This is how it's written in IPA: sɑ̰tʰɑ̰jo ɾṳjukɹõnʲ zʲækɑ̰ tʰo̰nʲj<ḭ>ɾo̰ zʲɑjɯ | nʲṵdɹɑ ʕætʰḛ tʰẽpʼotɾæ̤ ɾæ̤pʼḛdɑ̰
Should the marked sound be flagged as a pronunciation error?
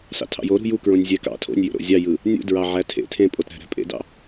yes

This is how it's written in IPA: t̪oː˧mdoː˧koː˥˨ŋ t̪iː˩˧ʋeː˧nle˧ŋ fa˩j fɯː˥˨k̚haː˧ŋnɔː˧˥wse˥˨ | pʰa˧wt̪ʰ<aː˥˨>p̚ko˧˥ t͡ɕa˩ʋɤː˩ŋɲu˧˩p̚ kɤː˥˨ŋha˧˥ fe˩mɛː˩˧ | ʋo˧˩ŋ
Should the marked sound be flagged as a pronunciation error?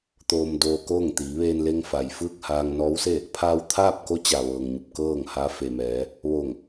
no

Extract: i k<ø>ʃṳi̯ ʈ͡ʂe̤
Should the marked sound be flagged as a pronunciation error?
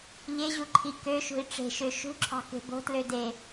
no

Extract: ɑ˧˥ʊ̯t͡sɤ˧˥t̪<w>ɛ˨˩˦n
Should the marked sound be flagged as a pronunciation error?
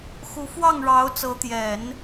yes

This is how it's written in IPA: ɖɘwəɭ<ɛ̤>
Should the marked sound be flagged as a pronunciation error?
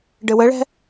no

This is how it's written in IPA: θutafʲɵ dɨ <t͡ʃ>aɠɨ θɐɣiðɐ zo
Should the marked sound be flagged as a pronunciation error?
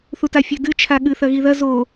yes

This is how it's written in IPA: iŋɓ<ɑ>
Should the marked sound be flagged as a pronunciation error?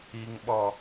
yes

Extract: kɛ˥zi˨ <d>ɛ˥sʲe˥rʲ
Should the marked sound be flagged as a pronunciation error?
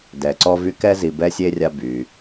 yes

